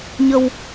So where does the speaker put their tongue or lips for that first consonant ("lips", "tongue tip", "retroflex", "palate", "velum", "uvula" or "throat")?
palate